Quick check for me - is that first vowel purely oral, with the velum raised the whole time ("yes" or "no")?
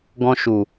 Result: no